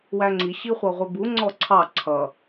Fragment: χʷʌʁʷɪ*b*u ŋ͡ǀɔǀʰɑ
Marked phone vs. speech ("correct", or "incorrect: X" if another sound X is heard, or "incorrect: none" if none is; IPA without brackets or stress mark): correct